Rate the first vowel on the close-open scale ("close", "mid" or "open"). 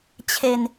mid